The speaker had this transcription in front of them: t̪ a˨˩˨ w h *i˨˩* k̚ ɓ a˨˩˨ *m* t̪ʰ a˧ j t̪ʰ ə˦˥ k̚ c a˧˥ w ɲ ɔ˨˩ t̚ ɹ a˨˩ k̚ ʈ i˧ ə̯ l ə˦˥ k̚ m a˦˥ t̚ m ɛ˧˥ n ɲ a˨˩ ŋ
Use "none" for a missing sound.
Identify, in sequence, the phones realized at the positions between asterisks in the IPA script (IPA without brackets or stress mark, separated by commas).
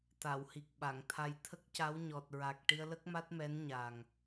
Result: i˨˩, ŋ